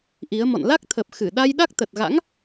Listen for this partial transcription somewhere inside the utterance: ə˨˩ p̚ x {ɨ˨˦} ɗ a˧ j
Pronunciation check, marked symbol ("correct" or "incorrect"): incorrect